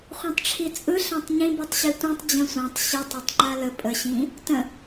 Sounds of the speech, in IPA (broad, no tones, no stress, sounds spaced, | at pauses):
χʷ ĩ tˤ ʈ͡ʂʰ i t͡sʼ ɯ ɬ ã tˤ ɲ ĩ b i tˤ ɕ i tʷ ĩ tˤ d͡ʑ ə̃ sʷ ã tˤ ɕ i tˤ a tˤ ŋ͡ǃ a l ə pʼ ə ɕ ĩ | t ə̃